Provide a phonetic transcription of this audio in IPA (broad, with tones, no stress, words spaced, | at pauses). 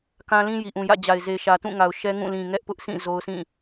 kã˦lĩ˦ ji˨ʔũ˨jä̰˦˨d͡ʑa˨ɪ̯ ze˨ʃä˨ tũ˦˨ŋa˨ʊ̯ ʃɛ˦ŋũ˦˨ lĩ˨ŋɛ˦ʔpʊ˦ʔsʰĩ˦˨ zo˦ʊ̯sʰĩ˦˨